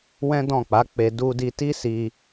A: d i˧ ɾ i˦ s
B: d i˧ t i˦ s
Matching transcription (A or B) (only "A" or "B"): B